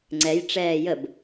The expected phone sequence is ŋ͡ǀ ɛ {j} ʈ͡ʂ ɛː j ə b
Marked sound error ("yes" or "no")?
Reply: no